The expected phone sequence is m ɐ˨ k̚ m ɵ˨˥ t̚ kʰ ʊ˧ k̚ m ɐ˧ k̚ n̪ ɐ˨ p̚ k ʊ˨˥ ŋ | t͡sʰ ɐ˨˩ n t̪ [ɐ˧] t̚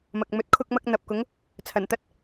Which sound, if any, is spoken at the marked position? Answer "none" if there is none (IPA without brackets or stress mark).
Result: ɐ˥